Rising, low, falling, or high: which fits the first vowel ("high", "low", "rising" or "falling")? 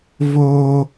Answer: high